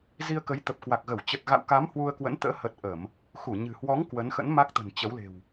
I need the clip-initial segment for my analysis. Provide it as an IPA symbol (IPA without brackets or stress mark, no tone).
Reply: z